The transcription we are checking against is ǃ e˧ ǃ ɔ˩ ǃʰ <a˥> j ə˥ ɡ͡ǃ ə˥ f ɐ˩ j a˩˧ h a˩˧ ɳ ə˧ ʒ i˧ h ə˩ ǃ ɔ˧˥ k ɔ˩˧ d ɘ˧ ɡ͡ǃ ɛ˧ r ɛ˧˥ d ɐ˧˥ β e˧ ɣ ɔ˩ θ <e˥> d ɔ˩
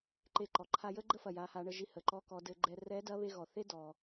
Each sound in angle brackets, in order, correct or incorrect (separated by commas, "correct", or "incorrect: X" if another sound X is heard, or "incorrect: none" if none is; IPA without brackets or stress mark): incorrect: a˧, correct